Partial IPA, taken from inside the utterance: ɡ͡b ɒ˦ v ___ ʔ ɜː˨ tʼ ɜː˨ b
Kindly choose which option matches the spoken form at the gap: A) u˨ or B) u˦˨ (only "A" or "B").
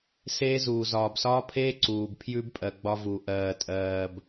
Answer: A